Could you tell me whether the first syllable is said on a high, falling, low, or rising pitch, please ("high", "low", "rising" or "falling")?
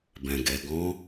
low